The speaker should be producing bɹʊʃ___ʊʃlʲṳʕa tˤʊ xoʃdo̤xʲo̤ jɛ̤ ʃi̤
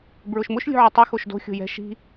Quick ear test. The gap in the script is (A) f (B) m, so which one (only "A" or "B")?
B